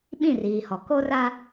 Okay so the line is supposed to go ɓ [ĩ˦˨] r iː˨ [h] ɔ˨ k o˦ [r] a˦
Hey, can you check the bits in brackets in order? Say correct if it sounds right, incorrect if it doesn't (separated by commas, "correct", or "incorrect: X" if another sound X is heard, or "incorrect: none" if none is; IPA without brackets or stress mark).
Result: correct, correct, correct